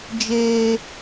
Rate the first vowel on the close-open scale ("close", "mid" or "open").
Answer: mid